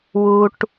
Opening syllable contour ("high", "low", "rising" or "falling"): low